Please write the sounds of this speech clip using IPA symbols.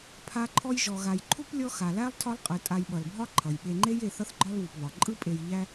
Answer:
pʰ a˦ ǃʰ ɔ˦ j ʒ ɔ˨ ɣ a˨ j ǃʰ u˥ p lʲ ɔ˦ x a˩ l æ˥ lˠ tʰ ɒ˦ lˠ qʼ ɯ˩ tʼ a˨ j ɓ ʌ˩ l bʱ ɒ˦ ǃʰ ʌ˩ j ɓ e˨ ŋ͡ǃ e˦ j e˨ θ ʌ˦ θ ɡ͡ǃ ɒ˦ l β u˩ p β ɒ˩ ǃʼ ɯ˦ pʼ e˨ j ʎ æ˦

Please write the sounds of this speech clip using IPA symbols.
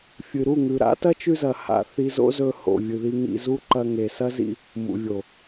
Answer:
fʲ ɨ˨ ɾ u˦˨ ŋ ʉ˨ ɾ a̰˨˦ t ɐ˦ t͡ʃ ʉ˧ z ɐ˨ h a̰˨ θ i˧ z o̰˦ z ɵ˧ h o̰˨ vʲ ɨ˨ ð i˧ ŋ ḭ˧ z u˦ ǃ ɐ˧ ŋ e˨ s ɐ˦ z ḭ˧ | m ṵ˨ vʲ o˨

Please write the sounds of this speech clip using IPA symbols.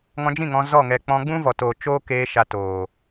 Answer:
ŋ ɔ̃˧ d͡ʒ ĩ˦˨ ŋ ɔ̃˧ z ɔ˦˨ ŋ ɛ˨ k͡p ɔ̃˧ ɡ͡b ũ˦ v ɔ˨ t oː˨ t͡ʃ oː˦ k eː˧ ʃ a˧ t oː˨

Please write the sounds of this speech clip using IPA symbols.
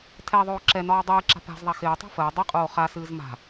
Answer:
tʰ ɛ ðˤ oː ǁ ɛ n ɒː dˤ ɨː ǁ a̤ p a̤ z ðˤ a x ɪː tˤ o̤ f əː dˤ ɨ qʼ oː χ a s ɨː z m a̤

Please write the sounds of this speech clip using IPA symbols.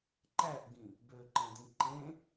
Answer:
ǃ æ ʔ ɡ ĩ | b ø ǃ ẽ d ĩ ǃ ẽ

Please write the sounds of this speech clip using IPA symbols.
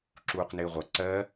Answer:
ǁ uː q n ɪː ʁʷ ʌ ǀ ɜ

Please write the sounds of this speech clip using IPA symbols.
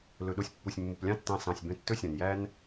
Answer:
l ɵ˨ ɗ o˧ sʲ pː u˨ sʲ mː u˨ p lʲ ɑ̃˦ tː ɑ̃˧ s ɑ̃˨ sʲ b œ̃˧ tː ɵ˦ sʲ œ̃˨ n j æ˦ n

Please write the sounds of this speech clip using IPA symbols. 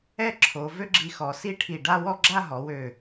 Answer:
ɛ˥ ǁʰ o˩˧ v ø˥ ɡ͡ǁ i˧ x ɔ˩˧ s i˥˧ ʈʰ i˧˩ ɖ a˥˧ w ɔ˥˧ ɡ͡ǁ a˥˧ ɦ ɔ˩˧ w ø˧˩

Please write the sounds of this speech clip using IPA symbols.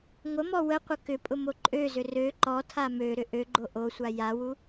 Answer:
ŋʷ ə m ɔ w ə qʷ ə k ʏ pʼ ʊ m o ǃʼ ø z ʏ r ø ǃ ɔ tʰ a m ø ɾ ʏ ʔ ø ɡ͡ǃ o ʔ o sʷ a j a w u

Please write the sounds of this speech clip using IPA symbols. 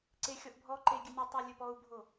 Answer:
ǀ e xʲ ɔ ʔ bʱ ɔ ǃ e ɡʲ ɘ nʲ ɵ tˤ ɔ lʲ ɵ p ɔ u̯ bʱ o

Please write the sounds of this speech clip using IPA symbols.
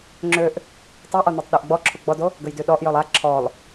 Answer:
ŋ͡ǁ ø ʔ | tˤ ø ʔ ɔ n o tˤ ɗ ø ʔ ɡ͡b ɔ ǁʰ u ɡ͡b ɔ d o | ɡ ə j d y ɗ ɔ ʔ j œ lˠ a ǁʰ ɔ lˠ

